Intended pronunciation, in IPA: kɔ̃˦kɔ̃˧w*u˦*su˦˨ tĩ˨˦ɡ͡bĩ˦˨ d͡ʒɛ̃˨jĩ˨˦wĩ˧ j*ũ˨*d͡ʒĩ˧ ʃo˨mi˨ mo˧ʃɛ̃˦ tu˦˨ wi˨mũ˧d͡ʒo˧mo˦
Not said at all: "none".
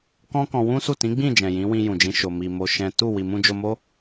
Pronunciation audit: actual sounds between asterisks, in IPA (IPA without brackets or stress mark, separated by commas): ũ˦, ũ˨